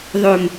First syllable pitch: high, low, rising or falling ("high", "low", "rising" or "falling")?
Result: low